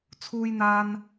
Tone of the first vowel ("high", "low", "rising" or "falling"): high